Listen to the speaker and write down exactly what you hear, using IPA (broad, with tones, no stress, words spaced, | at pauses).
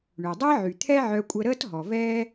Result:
ɳø˩ dˤəː˥ʕy˩ t̪ʰɛ˥ʕœ˧kʷʼə˧ɾəː˥t ɦɔ˩vɛː˥